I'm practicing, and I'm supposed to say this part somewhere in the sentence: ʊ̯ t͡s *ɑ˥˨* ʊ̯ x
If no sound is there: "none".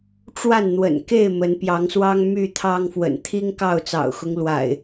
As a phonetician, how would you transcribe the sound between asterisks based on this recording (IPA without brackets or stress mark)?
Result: ɑ̰˨˩